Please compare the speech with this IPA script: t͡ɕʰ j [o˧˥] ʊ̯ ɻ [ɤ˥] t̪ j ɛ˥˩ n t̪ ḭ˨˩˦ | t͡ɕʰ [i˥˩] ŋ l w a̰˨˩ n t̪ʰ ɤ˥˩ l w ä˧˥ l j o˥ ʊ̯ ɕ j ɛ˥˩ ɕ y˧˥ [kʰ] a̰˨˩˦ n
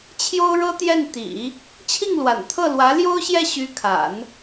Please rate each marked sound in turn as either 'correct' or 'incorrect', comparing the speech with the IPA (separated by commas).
incorrect, correct, correct, correct